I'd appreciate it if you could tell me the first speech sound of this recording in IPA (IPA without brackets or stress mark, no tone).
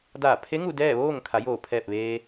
d